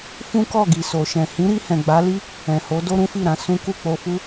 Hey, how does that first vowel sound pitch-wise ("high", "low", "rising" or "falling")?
high